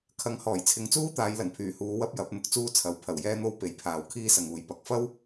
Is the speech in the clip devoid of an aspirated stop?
no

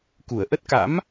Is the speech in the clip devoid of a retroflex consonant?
yes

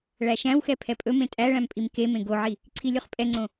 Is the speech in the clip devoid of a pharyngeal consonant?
no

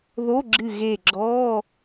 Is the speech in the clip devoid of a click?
no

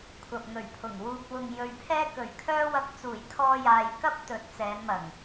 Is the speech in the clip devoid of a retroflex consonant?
yes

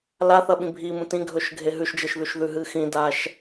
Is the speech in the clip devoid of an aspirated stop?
yes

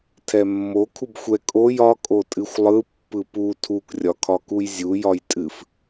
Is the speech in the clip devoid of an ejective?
no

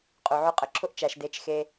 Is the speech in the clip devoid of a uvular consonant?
no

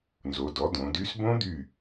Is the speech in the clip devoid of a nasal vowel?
no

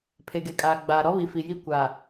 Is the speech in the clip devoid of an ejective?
no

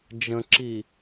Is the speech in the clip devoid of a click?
no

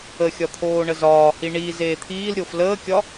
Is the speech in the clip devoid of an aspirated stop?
no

